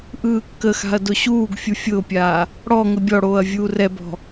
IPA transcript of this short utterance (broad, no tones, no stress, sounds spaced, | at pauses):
ʔ ɯː kː ə x a̤ ɐ̯ d ʊ ɕ uː ɡ fʲ u fʲ ʊː pʲ aː | ɽ ɔ ŋ ə bʲ ɔ ɽ oː ɐ̯ vʲ uː r ɛ b ɔ̤